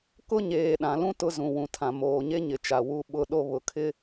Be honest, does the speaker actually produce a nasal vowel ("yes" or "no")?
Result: yes